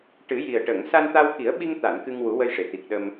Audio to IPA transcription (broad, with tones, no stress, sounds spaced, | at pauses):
ʈ ɨ˨˩˦ j i˨˩ ə̯ ʈ ə˨˩˨ ŋ s a˧ n t̪ a˧ w k i˨˩˦ ə̯ ɓ i˧ ŋ t̪ a˨˩˨ n k ɨ˧ ŋ w u˨˩˦ w ə˧ j ʂ e˨˩˨ t̪ i˨˩ k̚ ɗ ə˧ m